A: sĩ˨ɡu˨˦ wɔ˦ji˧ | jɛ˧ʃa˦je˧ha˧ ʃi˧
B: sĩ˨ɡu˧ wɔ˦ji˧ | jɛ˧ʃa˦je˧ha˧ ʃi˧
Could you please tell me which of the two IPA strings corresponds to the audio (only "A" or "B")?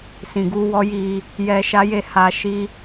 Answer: B